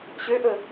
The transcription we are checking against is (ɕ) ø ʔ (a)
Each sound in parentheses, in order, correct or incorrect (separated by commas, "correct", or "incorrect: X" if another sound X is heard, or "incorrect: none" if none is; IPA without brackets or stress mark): correct, incorrect: ə